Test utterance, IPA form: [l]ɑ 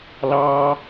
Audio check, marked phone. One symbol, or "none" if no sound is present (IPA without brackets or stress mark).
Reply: l